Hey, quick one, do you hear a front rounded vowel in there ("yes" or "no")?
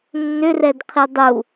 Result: yes